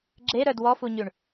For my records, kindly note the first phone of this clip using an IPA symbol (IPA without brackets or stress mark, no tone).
ɡ͡ǁ